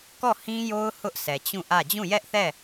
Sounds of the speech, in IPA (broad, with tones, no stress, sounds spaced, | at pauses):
k ɔ˦˨ h ĩ˦ j o˦ ʊ̯ h ʊ˦ ʔ s ɛ˨ t͡ɕ ũ˦˨ ʔ ä˦˨ d͡ʑ ũ˦˨ j ɛ˦ ʔ θ ɛ˦˨